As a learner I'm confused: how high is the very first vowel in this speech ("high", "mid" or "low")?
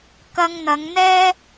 low